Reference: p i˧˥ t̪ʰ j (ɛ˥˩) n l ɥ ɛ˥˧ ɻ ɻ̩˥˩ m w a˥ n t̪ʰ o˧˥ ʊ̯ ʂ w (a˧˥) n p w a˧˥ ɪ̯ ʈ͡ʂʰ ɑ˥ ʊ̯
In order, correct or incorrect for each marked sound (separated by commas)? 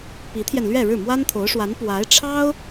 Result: incorrect, correct